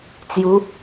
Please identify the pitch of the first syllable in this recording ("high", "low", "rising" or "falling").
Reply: rising